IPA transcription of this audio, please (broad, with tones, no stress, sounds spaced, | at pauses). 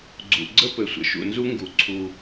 ɡ͡ǀ ṵ˨ ɡ͡ǀ ə˦ p ɘ˨ sʷ ə̰˨ ʃ ṵ˨ n z u˦ ŋ ɡ u˨ ǀʰ u˦